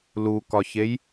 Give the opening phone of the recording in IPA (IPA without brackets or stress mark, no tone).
l